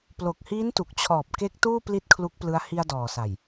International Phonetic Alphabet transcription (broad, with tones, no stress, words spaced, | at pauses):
plo˨˩k̚hiː˦˥ntu˨˩k̚t͡ɕʰɔː˨˩p̚ ke˦˥k̚ tuː˥˩ pli˥˩t̚kʰlu˦˥k̚plɯ˦˥a̯ hi˧a̯dɔː˨˩sa˨˩j